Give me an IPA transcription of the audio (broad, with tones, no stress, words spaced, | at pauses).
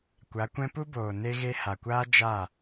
kʷa˨˦kʷɛ̃˦ pu˦boː˨ ne˦ɣe˦ ha˨kʷaː˦ d͡ʒa˦˨